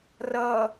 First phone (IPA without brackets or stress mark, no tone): r